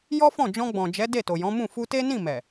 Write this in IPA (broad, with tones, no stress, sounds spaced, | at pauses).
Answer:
j ɔ˦ f ɔ̃˦˨ d͡ʒ ɔ̃˧ ɡ͡b ɔ̃˨ d͡ʒ ɛ˨˦ d e˦˨ t o˨ j ɔ̃˨˦ m ũ˦˨ f u˧ t e˦ n ĩ˦˨ m ɛ˨